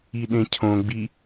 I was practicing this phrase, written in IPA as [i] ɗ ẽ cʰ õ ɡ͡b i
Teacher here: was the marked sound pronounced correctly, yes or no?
yes